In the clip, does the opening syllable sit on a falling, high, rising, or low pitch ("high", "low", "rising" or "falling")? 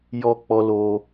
high